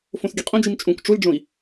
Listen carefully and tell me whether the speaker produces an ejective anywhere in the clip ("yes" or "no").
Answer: yes